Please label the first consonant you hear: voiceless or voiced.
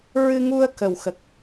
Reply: voiced